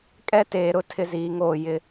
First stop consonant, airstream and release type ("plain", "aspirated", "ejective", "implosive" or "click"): ejective